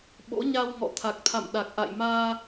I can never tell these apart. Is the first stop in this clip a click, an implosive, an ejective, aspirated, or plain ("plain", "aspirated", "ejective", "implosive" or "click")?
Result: implosive